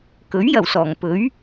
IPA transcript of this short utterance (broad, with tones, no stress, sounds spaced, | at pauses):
k ɵ˨˥ ɥ j ɐ˨˩ w s ɔː˨˩ ŋ p ɵ˨˥ ɥ